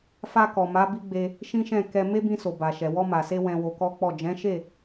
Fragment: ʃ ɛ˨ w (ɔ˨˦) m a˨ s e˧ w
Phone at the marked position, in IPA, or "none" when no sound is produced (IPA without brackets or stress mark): ɔ˧